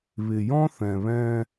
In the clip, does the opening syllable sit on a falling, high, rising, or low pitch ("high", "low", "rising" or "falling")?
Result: low